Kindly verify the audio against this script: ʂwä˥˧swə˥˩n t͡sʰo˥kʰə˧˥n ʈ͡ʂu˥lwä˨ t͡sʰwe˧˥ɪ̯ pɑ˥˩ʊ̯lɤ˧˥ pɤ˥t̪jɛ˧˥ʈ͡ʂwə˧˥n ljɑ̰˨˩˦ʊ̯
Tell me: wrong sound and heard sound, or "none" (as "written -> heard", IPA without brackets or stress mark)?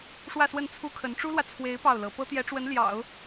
o˥ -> u˥